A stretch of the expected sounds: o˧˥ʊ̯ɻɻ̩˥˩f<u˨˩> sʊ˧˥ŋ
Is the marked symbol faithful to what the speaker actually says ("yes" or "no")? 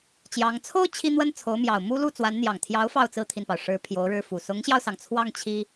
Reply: yes